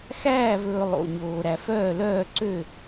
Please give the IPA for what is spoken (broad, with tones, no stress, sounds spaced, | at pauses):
x æː˥˨ v ɵː˧ lˠ o̰˧ ɲ oː˧ ɾ æ˧ f œː˥˨ l œː˥˨ ǀ ø˥˨